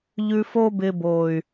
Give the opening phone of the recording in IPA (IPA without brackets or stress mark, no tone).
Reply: ʎ